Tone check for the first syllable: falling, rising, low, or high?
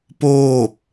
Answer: falling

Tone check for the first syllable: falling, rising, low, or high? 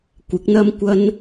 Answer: rising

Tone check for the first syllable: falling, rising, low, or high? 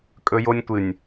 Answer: high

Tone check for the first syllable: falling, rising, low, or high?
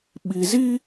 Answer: low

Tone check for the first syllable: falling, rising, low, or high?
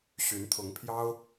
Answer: rising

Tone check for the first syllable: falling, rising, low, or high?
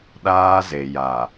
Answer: high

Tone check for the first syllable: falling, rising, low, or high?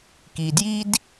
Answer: low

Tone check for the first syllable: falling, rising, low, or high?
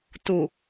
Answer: low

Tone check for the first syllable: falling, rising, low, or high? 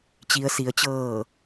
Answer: low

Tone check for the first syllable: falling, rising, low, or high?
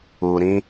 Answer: low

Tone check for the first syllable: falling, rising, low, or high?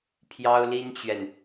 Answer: high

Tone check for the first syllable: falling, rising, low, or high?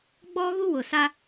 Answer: high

